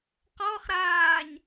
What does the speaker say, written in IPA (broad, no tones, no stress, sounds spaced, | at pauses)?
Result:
q ɔ χ ɾ aː ɲ